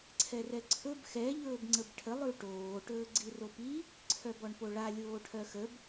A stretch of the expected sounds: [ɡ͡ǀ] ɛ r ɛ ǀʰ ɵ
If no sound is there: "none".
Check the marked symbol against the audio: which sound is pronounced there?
ǀʰ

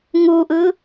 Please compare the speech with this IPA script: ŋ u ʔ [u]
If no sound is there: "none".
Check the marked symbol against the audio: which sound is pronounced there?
ɯ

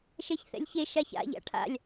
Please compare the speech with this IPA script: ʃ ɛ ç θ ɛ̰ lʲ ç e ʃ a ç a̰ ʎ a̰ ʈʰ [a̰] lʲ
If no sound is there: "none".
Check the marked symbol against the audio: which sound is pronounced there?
a̰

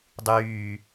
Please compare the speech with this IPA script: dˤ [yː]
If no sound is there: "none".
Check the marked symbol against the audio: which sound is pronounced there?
yː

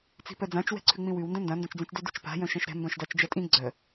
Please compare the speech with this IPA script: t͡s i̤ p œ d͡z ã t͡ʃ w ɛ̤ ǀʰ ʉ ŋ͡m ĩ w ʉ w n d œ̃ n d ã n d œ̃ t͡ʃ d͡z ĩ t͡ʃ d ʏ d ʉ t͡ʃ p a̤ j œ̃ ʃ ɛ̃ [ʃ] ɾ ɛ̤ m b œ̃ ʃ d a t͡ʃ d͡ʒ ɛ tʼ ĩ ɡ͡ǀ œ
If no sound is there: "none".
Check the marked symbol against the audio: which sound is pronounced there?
ʃ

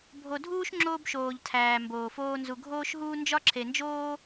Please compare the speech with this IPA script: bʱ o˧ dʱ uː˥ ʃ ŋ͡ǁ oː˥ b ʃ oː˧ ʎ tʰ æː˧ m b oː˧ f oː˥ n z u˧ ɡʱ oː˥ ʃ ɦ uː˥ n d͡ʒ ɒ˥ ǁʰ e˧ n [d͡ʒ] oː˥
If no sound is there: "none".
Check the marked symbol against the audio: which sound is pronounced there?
d͡ʒ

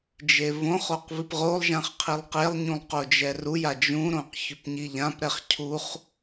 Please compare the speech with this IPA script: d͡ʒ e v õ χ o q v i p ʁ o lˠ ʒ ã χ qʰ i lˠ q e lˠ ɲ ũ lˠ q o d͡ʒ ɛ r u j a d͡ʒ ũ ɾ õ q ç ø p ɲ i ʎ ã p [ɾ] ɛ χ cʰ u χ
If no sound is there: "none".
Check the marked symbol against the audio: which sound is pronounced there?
ɾ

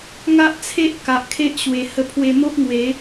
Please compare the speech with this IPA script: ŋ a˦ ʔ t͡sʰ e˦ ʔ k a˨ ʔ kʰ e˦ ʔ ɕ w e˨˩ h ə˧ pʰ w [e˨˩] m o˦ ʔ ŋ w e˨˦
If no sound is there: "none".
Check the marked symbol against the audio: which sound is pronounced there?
e˧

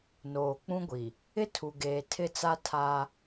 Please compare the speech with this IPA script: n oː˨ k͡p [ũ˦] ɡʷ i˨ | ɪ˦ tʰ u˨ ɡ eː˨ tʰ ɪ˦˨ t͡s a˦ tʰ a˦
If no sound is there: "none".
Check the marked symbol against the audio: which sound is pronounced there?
ũ˦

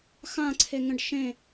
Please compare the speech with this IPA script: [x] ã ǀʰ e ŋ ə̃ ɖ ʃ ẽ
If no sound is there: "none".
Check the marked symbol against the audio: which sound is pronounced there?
x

